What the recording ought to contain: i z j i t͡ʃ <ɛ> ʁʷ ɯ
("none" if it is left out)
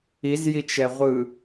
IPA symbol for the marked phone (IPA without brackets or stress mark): ɛ